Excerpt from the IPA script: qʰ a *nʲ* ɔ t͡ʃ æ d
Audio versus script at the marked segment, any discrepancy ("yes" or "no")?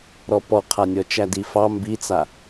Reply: no